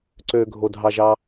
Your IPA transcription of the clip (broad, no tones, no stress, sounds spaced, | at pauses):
ǀ ø ɡʱ o dʱ ɑ ʒ ɑ